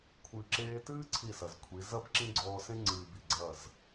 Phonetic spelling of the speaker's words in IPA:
kʷʰ ɨː˨ ǁ eː˧ t ɨː˦ ǀʰ i˦˨ s ɐ˨ z kʷʰ i˨˦ z ɐ˦ b ǁ ĩ˦ ɡ͡ǀ ɔː˧ s ẽ˦ ŋ͡ǀ ɨː˨ b i˨ ɡ͡ǀ ɐ˦˨ z

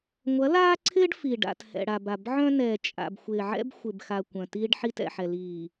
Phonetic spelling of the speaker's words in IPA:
ŋʷ ɐ˨˦ l aː˦ ǀʰ ɪː˦ ɖ f i˨ ɖ a̰˨ t h ɛ̰˨ ɽ a˨ b a˨ b ʕ œ̃˦ n ɛː˨ t͡ʃʼ a̰˨ b xʷ ɪː˨ ʕ ɛ̰˦ b xʷ ɪ˨ b x a˨ kʷ œ̃˨ t iː˦ ɖ ħ i˦ t ɛ̰˨ ħ ɛ˨ l iː˨

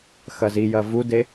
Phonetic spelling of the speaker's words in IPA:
x ɐ z i j ɐ v u d e

